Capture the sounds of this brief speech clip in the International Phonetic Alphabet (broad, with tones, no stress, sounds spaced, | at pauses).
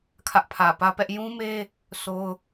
kʰ ä˦ ʔ pʰ ä˨ p ä˦ p ɛ˦ ʔ j ũ˦ m e˦ | s o˦ ʊ̯